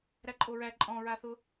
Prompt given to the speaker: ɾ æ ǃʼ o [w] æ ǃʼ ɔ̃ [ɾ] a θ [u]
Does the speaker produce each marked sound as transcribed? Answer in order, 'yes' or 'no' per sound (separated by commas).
no, no, no